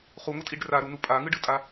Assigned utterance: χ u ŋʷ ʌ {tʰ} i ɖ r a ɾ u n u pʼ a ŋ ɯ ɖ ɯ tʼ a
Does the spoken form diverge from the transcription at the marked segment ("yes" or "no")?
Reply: yes